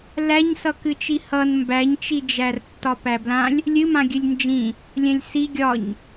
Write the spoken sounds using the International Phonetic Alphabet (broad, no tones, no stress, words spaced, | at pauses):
læɲsʌ kɨt͡ʃihʌn mbæɲt͡ʃid͡ʒær tːɒpæblãlʲ | lʲɨmã ɡʲɨlʲnd͡ʒĩ | lʲɛ̃lʲsi ɡʲɒɲ